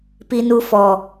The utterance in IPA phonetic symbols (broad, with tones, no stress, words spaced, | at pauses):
pi˨nu˨fɔ˨